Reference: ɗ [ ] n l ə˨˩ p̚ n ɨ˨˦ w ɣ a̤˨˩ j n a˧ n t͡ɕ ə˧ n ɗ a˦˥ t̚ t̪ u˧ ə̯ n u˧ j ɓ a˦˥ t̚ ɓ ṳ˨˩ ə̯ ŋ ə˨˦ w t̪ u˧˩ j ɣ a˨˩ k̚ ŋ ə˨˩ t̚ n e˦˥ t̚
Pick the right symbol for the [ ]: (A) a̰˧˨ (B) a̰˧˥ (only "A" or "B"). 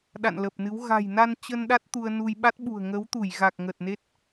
A